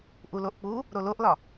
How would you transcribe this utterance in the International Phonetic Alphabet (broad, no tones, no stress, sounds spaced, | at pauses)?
ʔ u l o ʔ k͡p u | ɾ o l o ʔ l ɒ